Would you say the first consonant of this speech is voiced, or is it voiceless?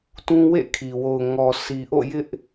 voiceless